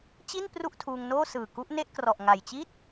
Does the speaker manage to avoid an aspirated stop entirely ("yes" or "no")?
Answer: no